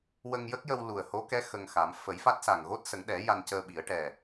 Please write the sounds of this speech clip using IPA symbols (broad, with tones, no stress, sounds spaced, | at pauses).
w ə˧ ŋ j ə˦˥ k̚ j ə˧ w l u˨˩ ə̯ h o˧˥ k ɛ˧˥ x ə˧ ŋ x a˨˩˦ m f ə˨˩˦ j f a˦˥ t̚ s a˨˩ ŋ ɣ o˦˥ t̚ s ə˨˩˦ ŋ ɗ ɛ˨˩˦ j a˧ n c əː˧ ɓ i˨˩˦ ə̯ ʈ ɛ˨˩